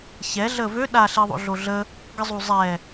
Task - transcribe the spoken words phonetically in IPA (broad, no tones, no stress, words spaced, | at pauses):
çɛ ɮəːvø ɗaɬiːðˤo̰ ɮoɮə | ɡəzˤuzˤɛ